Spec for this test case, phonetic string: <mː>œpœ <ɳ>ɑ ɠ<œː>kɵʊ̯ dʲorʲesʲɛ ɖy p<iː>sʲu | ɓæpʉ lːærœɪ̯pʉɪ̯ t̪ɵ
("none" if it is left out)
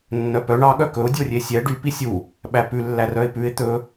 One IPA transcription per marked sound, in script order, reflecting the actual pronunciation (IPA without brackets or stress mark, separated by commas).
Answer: nː, ɳ, œ, i